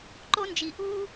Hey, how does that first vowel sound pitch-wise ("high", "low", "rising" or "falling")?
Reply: high